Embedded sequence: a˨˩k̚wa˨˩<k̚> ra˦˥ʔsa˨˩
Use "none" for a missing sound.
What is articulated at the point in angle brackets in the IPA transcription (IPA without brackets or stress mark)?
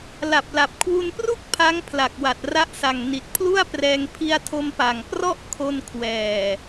t̚